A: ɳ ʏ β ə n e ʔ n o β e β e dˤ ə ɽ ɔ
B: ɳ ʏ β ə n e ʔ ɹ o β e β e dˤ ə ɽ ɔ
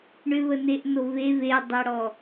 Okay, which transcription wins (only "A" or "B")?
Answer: A